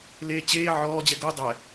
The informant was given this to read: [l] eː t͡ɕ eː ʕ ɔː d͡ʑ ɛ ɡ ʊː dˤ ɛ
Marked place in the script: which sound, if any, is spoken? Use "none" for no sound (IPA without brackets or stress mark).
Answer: l